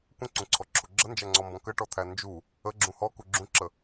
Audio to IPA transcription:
kʷə̃ǀũǀʰɔǁʰu ɡ͡ǁənd͡ʒæŋ͡ǀɔmbɔ̃ kəʈɔt̪ʰæ nd͡ʒu | əɡ͡ǁũ hɔku ɡ͡ǁũǁə

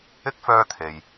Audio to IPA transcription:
ɪ˥k̚ fœː˧t̪ʰe˨j

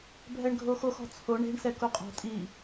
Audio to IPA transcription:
bʱɛɳɡʱoxox ɔ̤t͡sʰo ɳe̤ɳ sɛkuqʼɔ̤ tʼi

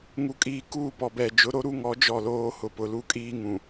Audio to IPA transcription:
ŋu˨kʼiː˨ kuː˦˨pɔ˨bɛ˨ d͡ʒʊ˨˦ɾo˦ɾu˦ŋɔ˨˦ d͡ʒɔ˦˨loː˦ hʊ˨pʊ˨lu˦kʼiː˦ ŋũ˨

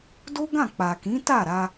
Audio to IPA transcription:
do˦ɡã˦˨ k͡pa˨kĩ˨˦ ta˦˨ɾa˧

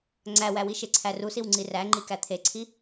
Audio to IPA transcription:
ŋ͡ǀæwæwi ʃeǀʰærusiw ŋ͡ǀiræŋ͡ǃi kæt̪ʰeǀʰi

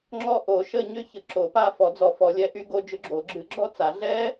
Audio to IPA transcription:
ŋ͡ǁɔ˦˨ ʔo˨˩˦ʃə˦˨ɲʏ˦˥çə˨˩˦ ǁo˨˩˦pa˦˨ fɔ˨˩˦d͡zɔ˨˩˦ fɔ˨˩˦lʲɛ˦˥ʔy˦˥ ɡo˦˥d͡ʒʏ˦˥ɡ͡ǁo˨˩˦ ɡ͡ǁɨ˨˩˦ɡ͡ǁɔ˦˥t͡sa˨˩˦ ɮɛ˦˥

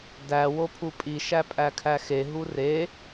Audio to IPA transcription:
dæ wopʰupʼi ʃæpʼækʰæxe ɦure

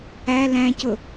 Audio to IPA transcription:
æ læ̃cʊ

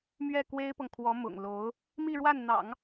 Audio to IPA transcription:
mɥɛ˥˩kwe˥ɪ̯pɤ˨ŋkʰwɔ˧˥ mʊ̰˨˩ŋlo˧˥ʊ̯ | mi˥˧ɻwa˥˩nn̪ɑ̰˨˩˦ŋ

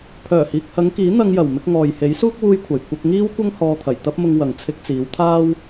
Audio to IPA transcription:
pʰœː˨˩hiː˨k̚hɐ˨˧ŋkiː˨˥ n̪ɐ˧ŋjɐ˨˩w mɪ˧k̚ŋɔː˨jhe˨˥jsuː˥k̚ wuː˥jkʷʰɐ˨j kʷɐ˧k̚ŋiː˥wkʷɐ˥ŋ hɔː˧t̪ʰɐ˨˩j t̪ɐ˥p̚mʊ˧ŋ wɐ˨ŋ t͡sʰɪ˧k̚t͡siː˨˧wt̪ʰaː˥w

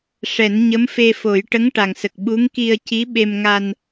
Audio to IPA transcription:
ʂɛ˨˩˦nɲə˧˥mfe˧fo˨˩˦j ʈə˧˥ŋʈa˨˩ŋsə˨˩k̚ ɓu˧˥ŋki˧ə̯ci˧˥ ɓe˧mŋa˧n

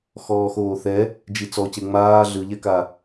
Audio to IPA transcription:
xɔːxoːθɛ | d͡ʒit͡sɔce ŋ͡maː ɮɯʎɛka

